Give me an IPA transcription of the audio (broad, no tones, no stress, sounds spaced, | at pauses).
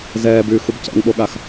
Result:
z ɛː b yː x u b c ɛ̰ ŋ ɓ o ɠ a x